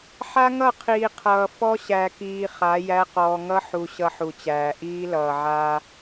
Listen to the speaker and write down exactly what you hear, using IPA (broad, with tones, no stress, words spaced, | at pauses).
ħa˦ŋʌ˦˨qʰiː˨ qʰʌː˨ fɔ˦ɕæ˨kiː˨ χa˨˦jæ˦ qɔː˨ŋʌ˦ħu˨ ɕʌ˦ħu˨t͡ɕæː˨ ʔiː˦lʌː˨ ʕaː˦